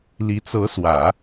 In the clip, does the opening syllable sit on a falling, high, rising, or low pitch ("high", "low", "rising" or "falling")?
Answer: rising